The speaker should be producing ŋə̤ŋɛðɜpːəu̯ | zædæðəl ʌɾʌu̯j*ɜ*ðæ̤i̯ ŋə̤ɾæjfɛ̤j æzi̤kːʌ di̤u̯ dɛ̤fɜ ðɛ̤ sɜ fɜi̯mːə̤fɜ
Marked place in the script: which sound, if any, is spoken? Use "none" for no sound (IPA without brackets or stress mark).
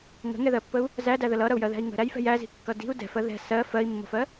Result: ɜ